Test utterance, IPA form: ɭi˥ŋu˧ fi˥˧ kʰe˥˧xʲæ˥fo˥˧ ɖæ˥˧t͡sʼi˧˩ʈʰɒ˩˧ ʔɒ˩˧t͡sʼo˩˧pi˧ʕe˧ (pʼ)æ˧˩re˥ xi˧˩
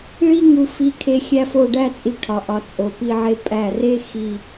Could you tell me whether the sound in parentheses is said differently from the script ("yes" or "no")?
no